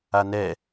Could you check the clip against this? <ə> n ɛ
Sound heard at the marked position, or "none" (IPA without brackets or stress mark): a